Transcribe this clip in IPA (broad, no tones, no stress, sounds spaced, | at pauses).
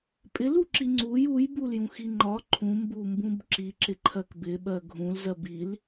pʼ ɪ l u ǁ i ŋ͡ǀ u j u j b u l j ũ x i ŋ͡ǃ ɒ ǃʰ ũ m b u m b ũ b ǁ i ǁ ɪ ǃʰ ɜ k b ɪ ɓ ɜ ɡʱ ũ l z ɜ b i l